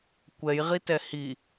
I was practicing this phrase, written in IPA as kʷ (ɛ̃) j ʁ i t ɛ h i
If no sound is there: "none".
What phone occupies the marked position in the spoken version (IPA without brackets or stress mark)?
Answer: ɛ